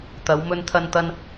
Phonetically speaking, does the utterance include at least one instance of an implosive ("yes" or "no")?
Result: no